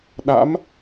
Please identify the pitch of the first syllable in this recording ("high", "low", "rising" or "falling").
rising